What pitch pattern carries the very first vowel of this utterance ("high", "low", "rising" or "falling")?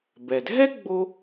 low